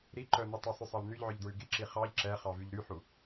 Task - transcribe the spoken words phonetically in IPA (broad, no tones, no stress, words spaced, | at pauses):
ɾiǃœ nʉtˤysˤʉ sˤɑlnyʎʕœʎ dɹʉɡiǁi χɑʎ ǁɛχɑ vyʎɾyħu